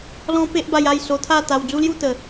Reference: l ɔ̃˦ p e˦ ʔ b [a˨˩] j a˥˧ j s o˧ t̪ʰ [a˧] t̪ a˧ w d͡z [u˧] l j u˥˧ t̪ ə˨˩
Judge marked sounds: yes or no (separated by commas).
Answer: no, no, no